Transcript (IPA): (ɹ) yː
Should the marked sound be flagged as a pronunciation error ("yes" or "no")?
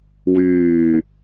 yes